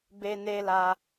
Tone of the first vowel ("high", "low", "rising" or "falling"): high